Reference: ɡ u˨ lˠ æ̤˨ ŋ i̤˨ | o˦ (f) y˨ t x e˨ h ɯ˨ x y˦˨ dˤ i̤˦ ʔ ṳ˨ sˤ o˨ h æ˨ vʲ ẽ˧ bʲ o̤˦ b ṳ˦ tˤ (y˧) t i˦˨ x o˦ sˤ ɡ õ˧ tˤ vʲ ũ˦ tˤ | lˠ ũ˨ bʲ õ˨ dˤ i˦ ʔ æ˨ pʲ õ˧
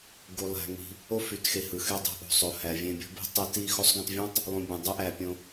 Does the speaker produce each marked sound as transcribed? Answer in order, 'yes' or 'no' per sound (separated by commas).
yes, no